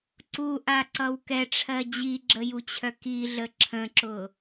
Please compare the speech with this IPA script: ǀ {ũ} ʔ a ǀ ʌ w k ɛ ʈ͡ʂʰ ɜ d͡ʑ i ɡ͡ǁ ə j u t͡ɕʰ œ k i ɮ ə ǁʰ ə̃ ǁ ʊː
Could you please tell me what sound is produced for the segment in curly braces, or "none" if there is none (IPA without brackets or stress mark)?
u